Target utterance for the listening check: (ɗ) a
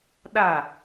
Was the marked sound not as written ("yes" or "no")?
no